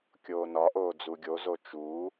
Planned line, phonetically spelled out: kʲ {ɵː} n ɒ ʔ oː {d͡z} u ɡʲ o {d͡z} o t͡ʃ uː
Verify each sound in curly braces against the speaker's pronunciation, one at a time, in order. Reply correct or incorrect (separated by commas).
incorrect, correct, incorrect